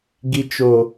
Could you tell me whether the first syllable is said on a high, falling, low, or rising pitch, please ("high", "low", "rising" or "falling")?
low